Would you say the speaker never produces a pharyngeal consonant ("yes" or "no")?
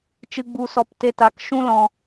yes